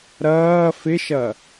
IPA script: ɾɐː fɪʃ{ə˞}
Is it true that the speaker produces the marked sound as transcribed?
no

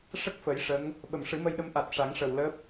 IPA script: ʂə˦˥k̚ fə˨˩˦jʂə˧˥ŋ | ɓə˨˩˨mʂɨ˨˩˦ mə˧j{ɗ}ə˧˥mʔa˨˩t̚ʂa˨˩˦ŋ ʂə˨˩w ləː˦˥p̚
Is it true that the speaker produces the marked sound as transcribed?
yes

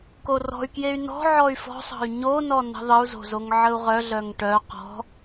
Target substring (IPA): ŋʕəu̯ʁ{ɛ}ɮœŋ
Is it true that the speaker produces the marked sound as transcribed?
no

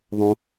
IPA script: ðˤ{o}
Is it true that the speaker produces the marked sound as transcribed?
no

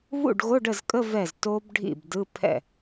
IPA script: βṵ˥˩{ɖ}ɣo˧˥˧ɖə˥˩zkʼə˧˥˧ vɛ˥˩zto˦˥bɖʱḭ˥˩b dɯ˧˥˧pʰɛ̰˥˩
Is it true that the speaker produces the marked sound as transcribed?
yes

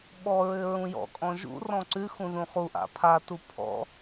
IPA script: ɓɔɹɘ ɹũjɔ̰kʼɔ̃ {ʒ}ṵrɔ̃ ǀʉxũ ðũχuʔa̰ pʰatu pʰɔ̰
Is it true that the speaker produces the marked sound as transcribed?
yes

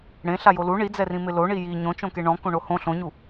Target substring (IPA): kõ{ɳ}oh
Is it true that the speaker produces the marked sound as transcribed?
yes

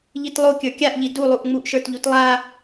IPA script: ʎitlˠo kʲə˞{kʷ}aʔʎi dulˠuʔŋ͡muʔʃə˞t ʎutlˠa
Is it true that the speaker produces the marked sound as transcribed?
no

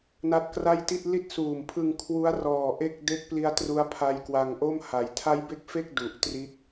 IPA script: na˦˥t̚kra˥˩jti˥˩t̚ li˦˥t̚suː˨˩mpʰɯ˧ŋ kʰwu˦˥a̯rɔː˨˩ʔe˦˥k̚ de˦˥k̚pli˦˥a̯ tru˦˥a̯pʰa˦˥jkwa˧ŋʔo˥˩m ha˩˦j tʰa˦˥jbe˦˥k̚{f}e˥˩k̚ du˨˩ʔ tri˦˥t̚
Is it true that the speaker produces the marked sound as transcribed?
yes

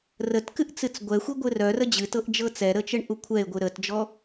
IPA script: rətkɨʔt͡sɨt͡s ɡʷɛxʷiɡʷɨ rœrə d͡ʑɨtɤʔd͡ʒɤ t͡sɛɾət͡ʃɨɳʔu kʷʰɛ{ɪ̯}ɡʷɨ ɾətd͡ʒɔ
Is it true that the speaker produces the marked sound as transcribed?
yes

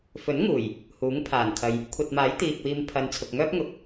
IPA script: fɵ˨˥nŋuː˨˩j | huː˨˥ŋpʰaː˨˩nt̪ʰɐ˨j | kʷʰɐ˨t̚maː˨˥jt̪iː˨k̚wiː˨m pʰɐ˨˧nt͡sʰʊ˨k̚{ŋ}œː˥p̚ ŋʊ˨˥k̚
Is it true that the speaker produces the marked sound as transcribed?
yes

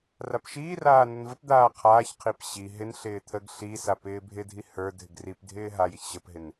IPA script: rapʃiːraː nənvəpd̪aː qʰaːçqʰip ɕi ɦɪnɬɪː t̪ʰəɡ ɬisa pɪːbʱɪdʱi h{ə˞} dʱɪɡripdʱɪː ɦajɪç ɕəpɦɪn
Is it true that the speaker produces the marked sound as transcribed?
yes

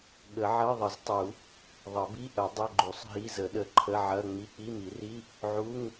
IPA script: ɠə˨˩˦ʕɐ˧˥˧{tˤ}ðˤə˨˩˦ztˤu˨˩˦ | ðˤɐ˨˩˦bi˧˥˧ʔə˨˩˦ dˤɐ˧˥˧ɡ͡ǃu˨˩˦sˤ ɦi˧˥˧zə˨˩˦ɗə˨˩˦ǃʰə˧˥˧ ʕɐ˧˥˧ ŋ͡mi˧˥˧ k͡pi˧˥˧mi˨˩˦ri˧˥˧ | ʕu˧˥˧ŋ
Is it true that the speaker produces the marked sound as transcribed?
no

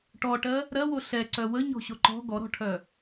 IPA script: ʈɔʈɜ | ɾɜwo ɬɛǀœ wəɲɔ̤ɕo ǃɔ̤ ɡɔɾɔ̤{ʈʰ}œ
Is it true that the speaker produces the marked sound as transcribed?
yes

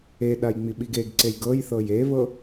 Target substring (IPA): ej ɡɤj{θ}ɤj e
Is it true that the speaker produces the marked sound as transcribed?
yes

